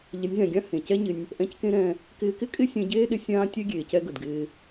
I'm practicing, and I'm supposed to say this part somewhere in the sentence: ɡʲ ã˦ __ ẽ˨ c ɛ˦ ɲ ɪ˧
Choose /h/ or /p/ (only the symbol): h